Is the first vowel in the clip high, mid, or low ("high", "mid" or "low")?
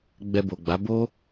mid